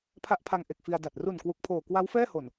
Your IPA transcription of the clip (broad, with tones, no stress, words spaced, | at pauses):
pʰa˦˥ʔpʰa˧ŋ ʔe˨˩k̚fi˧a̯da˨˩t̚ ru˨˩n kwu˨˩k̚pʰoː˨˩ kwa˦˥wfɛː˥˩ho˨˩n